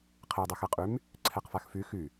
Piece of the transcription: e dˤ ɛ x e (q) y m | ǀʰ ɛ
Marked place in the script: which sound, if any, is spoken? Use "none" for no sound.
qʼ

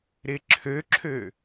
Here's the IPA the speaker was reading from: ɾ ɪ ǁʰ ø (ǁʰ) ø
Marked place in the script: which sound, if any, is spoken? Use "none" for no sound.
ǁʰ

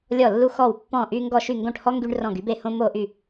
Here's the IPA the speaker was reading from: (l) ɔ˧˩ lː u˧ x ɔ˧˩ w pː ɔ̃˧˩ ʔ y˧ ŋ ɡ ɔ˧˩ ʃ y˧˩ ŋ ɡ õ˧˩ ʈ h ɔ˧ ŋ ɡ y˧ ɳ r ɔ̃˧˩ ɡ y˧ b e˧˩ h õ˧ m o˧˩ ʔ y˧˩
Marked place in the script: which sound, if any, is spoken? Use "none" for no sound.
lʲ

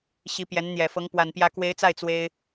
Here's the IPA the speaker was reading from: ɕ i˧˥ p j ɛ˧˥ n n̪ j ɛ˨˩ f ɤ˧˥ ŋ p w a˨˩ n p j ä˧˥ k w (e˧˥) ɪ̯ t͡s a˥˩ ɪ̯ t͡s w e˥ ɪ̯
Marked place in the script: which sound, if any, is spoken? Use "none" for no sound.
e˧˥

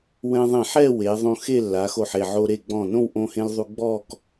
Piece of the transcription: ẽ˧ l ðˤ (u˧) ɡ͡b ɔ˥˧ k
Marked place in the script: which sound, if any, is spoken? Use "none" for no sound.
u˧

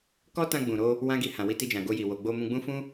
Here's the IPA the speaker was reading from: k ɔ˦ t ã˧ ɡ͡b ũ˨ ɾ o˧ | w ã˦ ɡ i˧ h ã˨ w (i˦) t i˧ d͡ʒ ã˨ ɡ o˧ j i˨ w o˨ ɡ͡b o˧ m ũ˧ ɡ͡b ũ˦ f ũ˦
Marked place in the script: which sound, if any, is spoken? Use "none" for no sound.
i˧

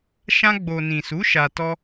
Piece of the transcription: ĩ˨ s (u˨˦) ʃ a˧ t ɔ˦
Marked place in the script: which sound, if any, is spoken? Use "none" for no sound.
u˨˦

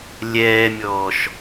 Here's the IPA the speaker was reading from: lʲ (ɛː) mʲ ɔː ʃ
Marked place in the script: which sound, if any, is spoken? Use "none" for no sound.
ɛː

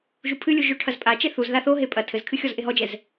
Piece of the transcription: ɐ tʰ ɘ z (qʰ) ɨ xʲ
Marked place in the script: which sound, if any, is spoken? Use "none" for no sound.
kʰ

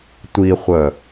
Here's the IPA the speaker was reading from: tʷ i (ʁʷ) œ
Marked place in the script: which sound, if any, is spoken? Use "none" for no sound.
χʷ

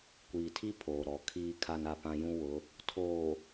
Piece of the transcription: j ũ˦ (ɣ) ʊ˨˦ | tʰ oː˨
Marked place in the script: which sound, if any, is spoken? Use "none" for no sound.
w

